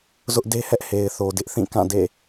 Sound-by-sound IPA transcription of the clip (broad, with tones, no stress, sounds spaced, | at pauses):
z ʊ˦ ʔ d e˦ h ɛ˦ ʔ h e˨ ɪ̯ θ o˨ d ɪ˦ ʔ θ ĩ˦˨ k ã˦˨ d ḛ˦˨